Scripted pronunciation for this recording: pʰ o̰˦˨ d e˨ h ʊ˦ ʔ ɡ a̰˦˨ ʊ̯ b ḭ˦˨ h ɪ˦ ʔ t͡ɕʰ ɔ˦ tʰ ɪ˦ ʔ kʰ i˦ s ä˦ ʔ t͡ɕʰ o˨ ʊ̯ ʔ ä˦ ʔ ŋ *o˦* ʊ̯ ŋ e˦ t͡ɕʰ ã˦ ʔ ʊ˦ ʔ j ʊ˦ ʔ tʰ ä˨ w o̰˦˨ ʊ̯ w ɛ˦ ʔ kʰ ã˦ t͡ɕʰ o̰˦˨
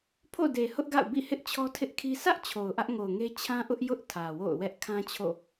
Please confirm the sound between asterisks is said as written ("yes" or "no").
no